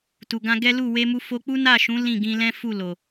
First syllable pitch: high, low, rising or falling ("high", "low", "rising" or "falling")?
low